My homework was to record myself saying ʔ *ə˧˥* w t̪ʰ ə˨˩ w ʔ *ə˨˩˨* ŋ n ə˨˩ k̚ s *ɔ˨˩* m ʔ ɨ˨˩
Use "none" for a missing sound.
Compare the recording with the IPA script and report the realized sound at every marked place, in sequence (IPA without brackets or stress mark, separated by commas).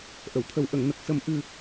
ə˨˩˨, ə˨˩˨, ə˨˩